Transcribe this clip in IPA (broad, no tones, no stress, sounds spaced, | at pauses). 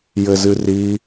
j ɘ z ɨ r i